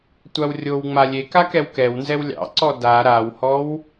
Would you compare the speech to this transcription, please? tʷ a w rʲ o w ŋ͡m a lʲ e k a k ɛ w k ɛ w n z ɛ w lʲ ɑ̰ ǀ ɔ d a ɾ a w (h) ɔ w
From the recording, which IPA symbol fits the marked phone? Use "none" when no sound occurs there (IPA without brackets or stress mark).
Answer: h